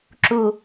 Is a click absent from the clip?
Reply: no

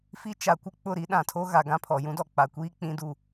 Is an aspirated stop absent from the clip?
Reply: no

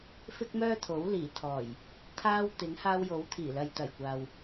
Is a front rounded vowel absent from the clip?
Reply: no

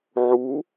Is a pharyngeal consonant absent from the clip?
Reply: no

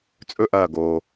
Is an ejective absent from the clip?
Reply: no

